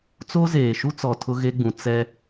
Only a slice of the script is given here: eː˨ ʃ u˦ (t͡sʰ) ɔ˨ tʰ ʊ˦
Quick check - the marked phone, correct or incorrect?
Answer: incorrect